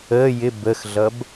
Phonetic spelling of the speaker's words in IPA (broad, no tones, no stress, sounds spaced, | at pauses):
əː j ɪ b ə x ɮ ʌ b